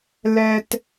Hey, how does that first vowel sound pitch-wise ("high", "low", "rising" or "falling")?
low